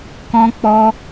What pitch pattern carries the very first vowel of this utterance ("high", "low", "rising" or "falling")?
high